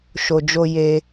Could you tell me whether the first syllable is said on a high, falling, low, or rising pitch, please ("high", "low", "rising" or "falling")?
low